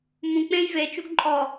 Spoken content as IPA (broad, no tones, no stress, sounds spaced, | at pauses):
m ũ k͡p ẽ j v e t͡ʃ u ɡ ǃʼ ɔ